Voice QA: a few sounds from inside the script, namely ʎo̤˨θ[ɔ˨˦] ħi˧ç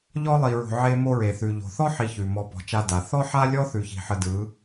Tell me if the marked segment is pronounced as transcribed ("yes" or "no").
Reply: no